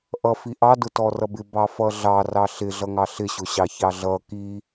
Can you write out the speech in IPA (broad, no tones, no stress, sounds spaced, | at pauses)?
ʔ ʌ f i ʔ ɑ d ʊ t ɔ r ʌ b ɪ b ɑ f ʌ ɮ ɑ r ɑ ɬ ɪ ɮ ʌ ŋ ɑ ɬ ɪ ɕ ʊ ɕ ɑ ç ɑ ɮ ʌ k i